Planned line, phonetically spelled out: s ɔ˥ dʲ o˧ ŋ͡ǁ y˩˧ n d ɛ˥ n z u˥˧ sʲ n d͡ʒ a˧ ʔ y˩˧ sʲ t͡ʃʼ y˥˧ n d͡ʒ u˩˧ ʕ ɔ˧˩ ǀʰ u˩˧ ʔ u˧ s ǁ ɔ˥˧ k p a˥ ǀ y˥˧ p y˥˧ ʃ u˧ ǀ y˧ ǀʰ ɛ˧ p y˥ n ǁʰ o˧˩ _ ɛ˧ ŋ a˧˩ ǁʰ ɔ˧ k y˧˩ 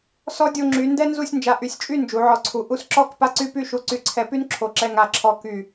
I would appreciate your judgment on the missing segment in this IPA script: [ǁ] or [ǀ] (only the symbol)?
ǁ